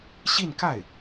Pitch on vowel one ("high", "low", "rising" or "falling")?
falling